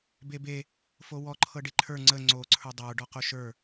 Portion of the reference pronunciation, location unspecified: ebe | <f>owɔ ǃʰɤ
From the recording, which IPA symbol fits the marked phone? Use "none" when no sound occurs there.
f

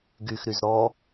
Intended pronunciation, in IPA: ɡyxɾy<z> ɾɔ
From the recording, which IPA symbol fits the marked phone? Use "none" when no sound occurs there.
z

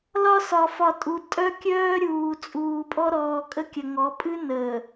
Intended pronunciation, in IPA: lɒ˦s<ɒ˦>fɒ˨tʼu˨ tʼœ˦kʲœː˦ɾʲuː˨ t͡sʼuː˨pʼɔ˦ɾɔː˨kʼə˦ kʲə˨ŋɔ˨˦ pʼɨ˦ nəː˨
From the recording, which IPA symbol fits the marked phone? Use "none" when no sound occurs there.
ɒ˨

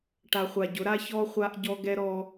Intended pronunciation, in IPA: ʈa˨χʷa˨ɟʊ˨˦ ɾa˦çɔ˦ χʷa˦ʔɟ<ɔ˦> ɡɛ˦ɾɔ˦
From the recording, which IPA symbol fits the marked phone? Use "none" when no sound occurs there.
ɔ˦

